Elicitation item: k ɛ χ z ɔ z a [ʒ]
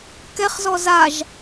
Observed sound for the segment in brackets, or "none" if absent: ʒ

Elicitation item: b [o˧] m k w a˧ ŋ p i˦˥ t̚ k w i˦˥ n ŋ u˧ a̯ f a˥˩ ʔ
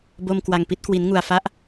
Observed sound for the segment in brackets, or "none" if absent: o˧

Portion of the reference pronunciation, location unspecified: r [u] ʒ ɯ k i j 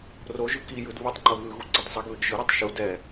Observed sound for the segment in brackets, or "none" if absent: o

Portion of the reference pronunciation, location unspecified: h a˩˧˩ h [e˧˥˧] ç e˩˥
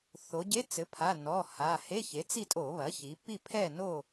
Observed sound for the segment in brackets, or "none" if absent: e˧˥˧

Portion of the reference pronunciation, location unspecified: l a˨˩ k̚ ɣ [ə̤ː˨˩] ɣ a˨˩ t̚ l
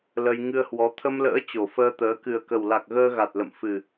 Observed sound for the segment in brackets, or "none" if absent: əː˧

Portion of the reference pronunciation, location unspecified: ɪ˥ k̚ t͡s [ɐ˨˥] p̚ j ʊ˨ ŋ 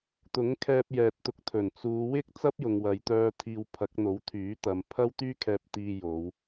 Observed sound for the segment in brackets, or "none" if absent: ɐ˥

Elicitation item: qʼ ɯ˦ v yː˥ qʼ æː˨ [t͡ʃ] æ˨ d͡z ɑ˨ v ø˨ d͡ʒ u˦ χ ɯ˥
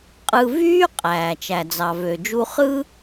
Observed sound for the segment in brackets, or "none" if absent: t͡ʃ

